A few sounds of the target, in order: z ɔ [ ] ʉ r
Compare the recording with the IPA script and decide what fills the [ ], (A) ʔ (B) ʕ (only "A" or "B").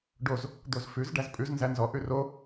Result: A